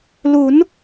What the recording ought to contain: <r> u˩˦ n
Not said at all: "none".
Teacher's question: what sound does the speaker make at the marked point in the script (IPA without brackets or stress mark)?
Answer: l